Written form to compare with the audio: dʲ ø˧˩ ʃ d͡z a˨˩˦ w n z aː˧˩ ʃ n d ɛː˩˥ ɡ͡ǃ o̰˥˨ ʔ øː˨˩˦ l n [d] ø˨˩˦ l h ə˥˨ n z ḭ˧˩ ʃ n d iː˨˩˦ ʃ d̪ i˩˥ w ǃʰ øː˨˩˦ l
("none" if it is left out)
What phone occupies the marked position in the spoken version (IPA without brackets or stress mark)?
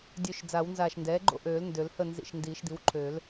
d